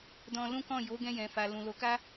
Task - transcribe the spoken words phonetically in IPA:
d ɔ̃˧ l ũ˦ k ɔ̃˦˨ j o˨˦ ɡ ɛ̃˧ j ɛ̃˨ f a˨ l ũ˨ l o˨˦ k a˦

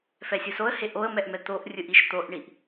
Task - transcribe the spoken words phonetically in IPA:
f ɛ sʲ o s o ə̯ h e ʔ o ə̯ m ɛ ʔ m ɛ t̪ o ʔ rʲ ɯ ʔ i ʃ t̪ o ʔ ɳ i ʔ

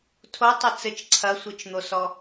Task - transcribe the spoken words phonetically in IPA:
tʰ o tˤ ɘ t͡s ɘ t͡ʃ ǀʰ ɐ sʷ ɨ t͡ʃ n̪ o s ɔ

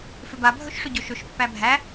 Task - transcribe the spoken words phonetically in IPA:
f ʏ b a bʱ ɵ ʃ ʂ ʏ ɟ ɵ ʃ ɵ ʃ pː æ bʱ æ

